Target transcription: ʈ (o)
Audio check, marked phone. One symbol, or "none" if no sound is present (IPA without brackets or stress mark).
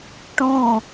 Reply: õ